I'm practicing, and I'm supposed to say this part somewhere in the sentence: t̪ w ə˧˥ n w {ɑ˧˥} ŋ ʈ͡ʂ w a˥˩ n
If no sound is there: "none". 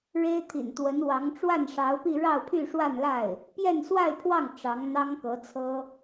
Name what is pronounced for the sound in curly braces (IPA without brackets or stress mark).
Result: ɑ˧˥